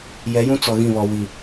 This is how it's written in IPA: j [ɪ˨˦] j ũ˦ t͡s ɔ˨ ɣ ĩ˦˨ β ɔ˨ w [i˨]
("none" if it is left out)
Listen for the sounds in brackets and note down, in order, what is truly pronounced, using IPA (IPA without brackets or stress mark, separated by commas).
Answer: ɛ˨˦, i˨